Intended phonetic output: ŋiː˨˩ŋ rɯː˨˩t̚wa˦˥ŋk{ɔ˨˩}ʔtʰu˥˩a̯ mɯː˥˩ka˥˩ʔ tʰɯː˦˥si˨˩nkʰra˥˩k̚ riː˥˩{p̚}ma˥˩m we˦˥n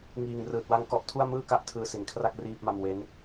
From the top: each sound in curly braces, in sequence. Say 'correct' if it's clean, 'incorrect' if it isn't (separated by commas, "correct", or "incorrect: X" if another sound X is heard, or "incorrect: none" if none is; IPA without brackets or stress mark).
incorrect: ɔ˦˥, correct